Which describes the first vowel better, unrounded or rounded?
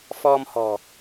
rounded